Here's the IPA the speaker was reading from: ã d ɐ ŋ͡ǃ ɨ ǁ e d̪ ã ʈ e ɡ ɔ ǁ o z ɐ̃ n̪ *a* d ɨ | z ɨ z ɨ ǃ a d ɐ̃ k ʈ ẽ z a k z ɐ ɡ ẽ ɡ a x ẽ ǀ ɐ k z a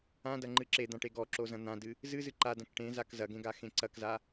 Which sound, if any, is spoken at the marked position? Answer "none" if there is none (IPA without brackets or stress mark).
ã